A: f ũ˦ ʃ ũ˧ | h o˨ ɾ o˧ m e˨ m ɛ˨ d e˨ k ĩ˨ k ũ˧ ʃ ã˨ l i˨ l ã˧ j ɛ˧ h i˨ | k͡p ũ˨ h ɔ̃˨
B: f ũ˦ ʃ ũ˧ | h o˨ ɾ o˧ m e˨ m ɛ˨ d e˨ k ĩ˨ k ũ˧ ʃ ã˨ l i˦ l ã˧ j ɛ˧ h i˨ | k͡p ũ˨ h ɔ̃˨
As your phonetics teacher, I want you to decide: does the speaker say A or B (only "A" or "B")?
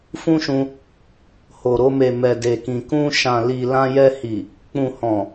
A